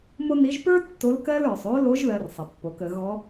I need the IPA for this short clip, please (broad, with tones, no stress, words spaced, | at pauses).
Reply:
mo˥ni˧˥ʒ pə˞˥ tːo˧˥lkɜ˥l ə˞˩sˤ o˧˥lo˧˥ʒ ðɜ˧rsˤə˩pːo˩˧kə˩˧ ɣɔ˧˥